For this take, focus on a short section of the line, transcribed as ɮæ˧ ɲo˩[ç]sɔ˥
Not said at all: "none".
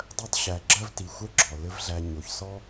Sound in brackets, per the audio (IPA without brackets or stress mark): ç